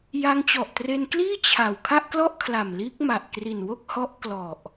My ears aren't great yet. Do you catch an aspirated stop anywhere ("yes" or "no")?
yes